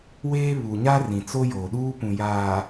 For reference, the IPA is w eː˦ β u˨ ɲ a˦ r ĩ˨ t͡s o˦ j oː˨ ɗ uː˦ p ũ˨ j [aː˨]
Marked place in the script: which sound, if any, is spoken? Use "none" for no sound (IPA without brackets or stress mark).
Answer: aː˨